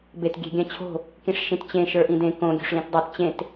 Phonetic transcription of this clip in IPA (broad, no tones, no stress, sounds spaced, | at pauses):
b e t ɡʲ ɛ̤ ɡʲ ã t͡ɕʰ o̤ | k ĩ ʂ ʃ ĩ t t͡ɕ ẽ ʃ ə˞ ʔ ĩ d ẽ k õ ɡʲ o̤ ʂ l ĩ t dˤ ɛ t t͡ɕ ẽ t